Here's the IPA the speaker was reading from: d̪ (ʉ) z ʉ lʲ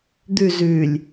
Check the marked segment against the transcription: correct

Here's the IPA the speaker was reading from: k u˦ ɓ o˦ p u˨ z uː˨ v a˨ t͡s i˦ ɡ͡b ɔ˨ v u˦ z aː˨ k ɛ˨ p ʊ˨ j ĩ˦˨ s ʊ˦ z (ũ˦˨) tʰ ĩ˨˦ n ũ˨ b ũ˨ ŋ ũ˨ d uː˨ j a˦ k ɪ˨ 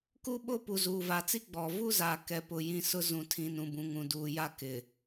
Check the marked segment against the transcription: incorrect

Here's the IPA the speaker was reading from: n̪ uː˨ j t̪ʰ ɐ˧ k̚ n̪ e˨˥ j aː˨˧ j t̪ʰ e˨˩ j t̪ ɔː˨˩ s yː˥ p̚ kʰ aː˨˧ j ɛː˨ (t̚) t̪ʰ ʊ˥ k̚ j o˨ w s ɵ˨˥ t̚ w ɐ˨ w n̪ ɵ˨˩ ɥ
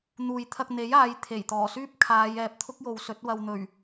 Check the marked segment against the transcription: incorrect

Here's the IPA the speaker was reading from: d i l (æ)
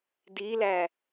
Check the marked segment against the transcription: correct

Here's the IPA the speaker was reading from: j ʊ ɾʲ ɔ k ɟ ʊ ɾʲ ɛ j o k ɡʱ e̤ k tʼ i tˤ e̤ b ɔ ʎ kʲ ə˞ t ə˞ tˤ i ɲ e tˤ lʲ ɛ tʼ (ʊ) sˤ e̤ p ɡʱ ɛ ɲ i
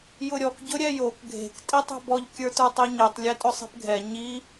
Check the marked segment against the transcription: correct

